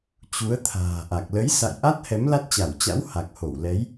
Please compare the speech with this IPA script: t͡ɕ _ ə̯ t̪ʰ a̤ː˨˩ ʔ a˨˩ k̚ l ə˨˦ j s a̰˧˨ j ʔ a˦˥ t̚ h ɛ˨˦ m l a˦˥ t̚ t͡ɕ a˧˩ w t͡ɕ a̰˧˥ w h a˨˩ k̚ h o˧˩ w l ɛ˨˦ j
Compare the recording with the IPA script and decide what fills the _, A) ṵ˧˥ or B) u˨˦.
B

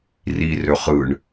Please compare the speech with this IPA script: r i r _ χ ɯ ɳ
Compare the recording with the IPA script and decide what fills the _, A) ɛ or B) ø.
B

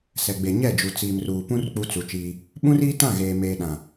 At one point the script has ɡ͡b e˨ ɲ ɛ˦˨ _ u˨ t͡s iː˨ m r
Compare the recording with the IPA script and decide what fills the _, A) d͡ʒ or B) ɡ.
A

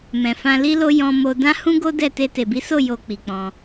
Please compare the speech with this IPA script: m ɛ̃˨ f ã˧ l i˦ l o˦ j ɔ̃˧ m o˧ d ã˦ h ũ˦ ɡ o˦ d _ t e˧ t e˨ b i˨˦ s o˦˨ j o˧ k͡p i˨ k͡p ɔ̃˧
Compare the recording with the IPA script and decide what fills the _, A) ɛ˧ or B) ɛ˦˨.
B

